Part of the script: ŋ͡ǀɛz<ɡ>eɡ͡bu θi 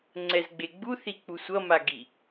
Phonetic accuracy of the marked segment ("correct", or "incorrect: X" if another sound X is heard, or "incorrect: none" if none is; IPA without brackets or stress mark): incorrect: ɡ͡b